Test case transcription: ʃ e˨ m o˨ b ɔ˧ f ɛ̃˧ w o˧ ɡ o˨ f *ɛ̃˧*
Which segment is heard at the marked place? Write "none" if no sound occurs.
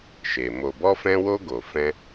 ɛ̃˧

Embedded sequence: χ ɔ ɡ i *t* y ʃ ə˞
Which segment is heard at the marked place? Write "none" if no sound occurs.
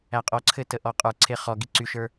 ǀ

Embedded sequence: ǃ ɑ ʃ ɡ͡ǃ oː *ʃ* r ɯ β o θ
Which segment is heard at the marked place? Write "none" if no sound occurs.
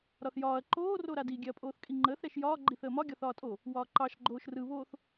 ʃ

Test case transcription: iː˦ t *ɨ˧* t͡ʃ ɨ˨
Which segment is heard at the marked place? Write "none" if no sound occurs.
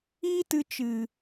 ɨ˧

